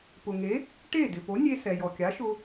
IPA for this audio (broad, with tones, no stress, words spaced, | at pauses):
pʊ˩ŋe˩˥ | ʈe˥˩ dɪ˩po˩˥nʲe˧sɛ˩ jɔ˩kʲa˩˥ʃʊ˧